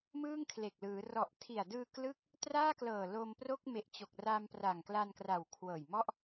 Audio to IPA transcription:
mɯː˥˩ŋkʰle˨˩k̚lɯː˩˦ rɔ˨˩ʔtʰi˨˩a̯ dɯː˧klɯ˦˥k̚ | traː˥˩klɤː˨˩ lo˧mpro˥˩k̚ me˨˩ʔt͡ɕo˨˩k̚ra˧m pra˨˩ŋkla˧nkra˨˩w kʰwɤː˨˩jmɔ˥˩ʔ

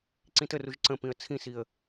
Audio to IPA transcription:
ǀĩtəruʒ ǀə̃pĩə̯ t͡sʰĩsiə̯

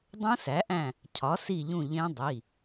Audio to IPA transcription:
dˤũ˦˥sæ˩˥ʔæ̃˦˨ | cʰɒ˩˥si˦˨ʎũ˦˨ ʎẽ˦˥ dˤi˩˧˩

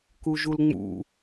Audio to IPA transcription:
kuʒulŋ͡mṵ

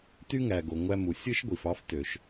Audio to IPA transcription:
ty˥ŋæ˩ ɡo˩ ŋʷæ˧mu˩ sʲɯ˥ʃ ɡʷi˩fɑ˥f tø˩ʃ

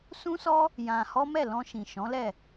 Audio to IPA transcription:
sũ˦sɔ˦ | jã˧hɔ˦ mɛ˦˨lɔ̃˧ʃĩ˨ ʃɔ̃˨˦lɛ˦˨

